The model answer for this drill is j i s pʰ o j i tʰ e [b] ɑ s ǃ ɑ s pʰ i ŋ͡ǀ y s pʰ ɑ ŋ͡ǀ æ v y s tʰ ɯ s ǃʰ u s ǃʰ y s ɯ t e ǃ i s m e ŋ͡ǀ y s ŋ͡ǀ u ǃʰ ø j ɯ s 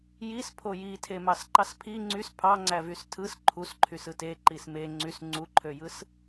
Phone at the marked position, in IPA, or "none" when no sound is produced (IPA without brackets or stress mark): m